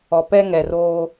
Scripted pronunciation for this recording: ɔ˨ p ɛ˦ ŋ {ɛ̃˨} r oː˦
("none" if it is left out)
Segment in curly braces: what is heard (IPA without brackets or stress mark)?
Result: ɛ˨